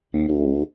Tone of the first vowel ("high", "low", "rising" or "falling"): low